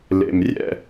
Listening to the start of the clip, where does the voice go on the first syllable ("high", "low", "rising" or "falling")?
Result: low